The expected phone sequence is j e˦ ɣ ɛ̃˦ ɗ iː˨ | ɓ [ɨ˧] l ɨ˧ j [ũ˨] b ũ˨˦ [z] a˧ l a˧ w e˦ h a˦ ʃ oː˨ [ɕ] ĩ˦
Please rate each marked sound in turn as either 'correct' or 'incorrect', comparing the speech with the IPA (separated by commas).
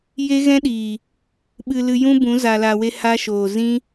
correct, incorrect, correct, incorrect